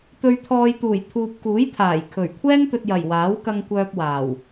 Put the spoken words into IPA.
t̪ ɵ˨ ɥ t̪ʰ ɔː˨ j t̪ uː˨˩ j t̪ʰ uː˨ p̚ k uː˨˥ j t̪ʰ aː˨˩ j kʰ ɵ˨˩ ɥ kʷʰ ɛː˥ ŋ t̪ ɵ˨ t̚ j ɐ˨˩ j w aː˨˥ w k ɐ˧ ŋ kʷ œː˧ p̚ w aː˨˩ w

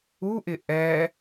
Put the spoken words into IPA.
u ʔ ɪ ʔ ɛ

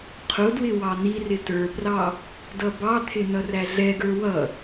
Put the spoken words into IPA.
qʰ ʊ d w ɪ w ɑ n̪ i r ɪ t ə˞ p r ɑ | d ʌ b ɑ t̪ʰ ɪ n ʌ r æ ɮ ɛ ɡ ə˞ w ʌ

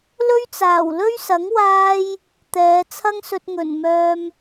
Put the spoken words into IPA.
l ɵ˥ ɥ t͡s aː˨˩ w l ɵ˥ ɥ s ɐ˨˥ ŋ w aː˥ j | t̪ ɛː˨˧ t͡sʰ ɐ˥ ŋ s ɵ˧ t̚ ŋ ɵ˨˩ n m œː˧ m

